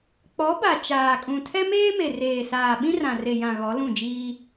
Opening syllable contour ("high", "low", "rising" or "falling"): rising